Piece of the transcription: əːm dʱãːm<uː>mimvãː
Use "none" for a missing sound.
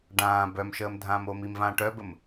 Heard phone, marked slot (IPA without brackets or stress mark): oː